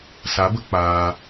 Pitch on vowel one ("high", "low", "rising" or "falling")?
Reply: rising